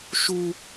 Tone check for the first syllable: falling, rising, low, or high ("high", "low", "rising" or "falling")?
high